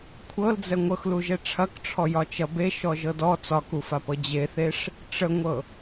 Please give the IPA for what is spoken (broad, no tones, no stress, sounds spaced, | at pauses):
kʷʰ ɤ l d͡z ɛ ŋʷ ɤ x l u ʒ ɛ ʈ͡ʂʰ ɐ k ʈ͡ʂʰ ɔ j ɒ t͡ʃ ɐ b e ʃ ɔ ʒ ɤ d ɔ t͡s ɒ k u f a p ɤ d͡ʑ e θ e ʂ | ʈ͡ʂ ə ŋʷ ɤ